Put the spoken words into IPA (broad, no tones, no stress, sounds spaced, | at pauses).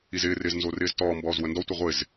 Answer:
i z ɪː r ɪː z n z o r ɪː z t ɔː m b ɔː z w ə n d ɔ tʷ ɪ ʁʷ ɪ z